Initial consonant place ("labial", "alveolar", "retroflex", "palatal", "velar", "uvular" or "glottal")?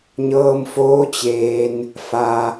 palatal